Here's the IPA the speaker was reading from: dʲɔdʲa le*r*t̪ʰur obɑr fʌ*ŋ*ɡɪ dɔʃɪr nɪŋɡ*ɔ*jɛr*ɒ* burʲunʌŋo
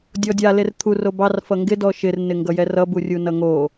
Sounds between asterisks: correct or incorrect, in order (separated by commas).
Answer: correct, correct, incorrect, incorrect